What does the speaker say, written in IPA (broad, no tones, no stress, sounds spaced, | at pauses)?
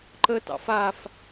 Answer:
ǃ ə t ɑ̰ f a f